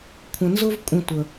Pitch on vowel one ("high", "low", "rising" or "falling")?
low